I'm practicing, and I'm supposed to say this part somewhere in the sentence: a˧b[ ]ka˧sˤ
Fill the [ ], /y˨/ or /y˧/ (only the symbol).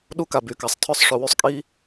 y˧